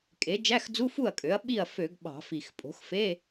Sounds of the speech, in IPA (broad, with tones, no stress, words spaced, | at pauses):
kʼe˩˥ d͡ʒæ˧˥˧x d͡zu˧˥˧fu˥˩ɐ̯kʼø˩˥ɐ̯ ɓi˥˩ɐ̯fø˧˩˧ɡ ɓɑ̤˧˩˧fi˨˩x pʼo̤˩˥xfe˧˥˧